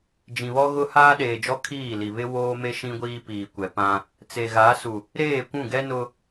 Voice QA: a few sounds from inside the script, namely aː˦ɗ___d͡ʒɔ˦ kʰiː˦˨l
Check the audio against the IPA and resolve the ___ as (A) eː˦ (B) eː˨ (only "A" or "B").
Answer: B